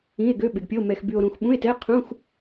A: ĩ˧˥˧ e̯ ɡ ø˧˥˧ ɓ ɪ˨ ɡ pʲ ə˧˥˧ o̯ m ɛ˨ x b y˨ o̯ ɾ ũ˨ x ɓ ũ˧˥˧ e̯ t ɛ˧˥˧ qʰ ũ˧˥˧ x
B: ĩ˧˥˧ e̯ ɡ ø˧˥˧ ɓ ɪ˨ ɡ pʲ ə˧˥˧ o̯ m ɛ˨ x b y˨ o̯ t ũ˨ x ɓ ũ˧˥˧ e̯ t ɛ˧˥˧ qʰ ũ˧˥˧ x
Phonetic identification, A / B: A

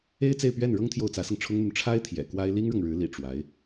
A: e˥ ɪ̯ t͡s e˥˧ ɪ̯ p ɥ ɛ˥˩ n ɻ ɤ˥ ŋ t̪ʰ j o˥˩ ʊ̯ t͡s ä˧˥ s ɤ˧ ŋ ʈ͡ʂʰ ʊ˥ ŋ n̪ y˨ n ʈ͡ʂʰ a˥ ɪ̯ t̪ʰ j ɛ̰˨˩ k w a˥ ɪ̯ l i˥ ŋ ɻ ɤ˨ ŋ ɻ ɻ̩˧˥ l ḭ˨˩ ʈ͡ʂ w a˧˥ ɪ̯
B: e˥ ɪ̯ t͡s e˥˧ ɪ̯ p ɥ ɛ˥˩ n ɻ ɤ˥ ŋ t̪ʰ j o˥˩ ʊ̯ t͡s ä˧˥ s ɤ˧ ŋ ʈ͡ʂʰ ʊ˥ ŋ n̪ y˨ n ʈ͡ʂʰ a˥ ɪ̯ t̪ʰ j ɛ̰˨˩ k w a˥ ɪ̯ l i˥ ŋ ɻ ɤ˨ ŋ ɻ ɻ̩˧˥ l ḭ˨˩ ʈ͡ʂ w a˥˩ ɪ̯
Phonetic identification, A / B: A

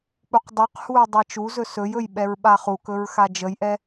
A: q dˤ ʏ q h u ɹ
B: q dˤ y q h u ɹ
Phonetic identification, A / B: B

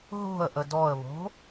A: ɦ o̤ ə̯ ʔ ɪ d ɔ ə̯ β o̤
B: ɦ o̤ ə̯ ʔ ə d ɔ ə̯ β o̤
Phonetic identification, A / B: B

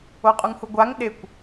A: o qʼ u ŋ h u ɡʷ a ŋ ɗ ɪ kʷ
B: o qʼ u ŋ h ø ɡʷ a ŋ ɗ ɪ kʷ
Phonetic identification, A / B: A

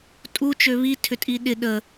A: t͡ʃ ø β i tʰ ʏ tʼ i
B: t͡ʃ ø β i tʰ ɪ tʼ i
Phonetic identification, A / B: A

